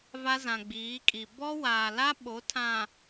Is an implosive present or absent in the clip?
present